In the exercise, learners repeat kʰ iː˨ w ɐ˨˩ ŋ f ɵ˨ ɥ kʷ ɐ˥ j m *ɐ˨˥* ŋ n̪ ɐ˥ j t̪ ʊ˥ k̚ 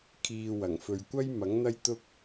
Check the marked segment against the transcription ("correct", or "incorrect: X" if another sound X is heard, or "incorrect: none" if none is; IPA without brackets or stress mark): correct